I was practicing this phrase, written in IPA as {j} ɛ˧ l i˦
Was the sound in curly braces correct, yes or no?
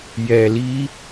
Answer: yes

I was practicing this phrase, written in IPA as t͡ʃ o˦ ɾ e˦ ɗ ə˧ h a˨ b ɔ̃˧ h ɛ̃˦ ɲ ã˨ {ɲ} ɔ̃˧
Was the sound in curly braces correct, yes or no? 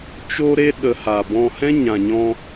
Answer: yes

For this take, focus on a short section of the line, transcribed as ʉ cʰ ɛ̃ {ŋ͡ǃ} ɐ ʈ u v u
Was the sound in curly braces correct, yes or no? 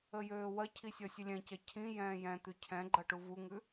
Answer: no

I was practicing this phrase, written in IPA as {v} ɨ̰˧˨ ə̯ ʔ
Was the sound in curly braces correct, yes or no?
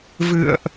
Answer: yes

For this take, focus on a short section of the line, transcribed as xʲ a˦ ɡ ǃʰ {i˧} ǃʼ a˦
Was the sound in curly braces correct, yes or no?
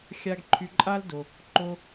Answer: no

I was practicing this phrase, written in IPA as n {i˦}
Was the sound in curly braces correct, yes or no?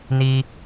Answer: yes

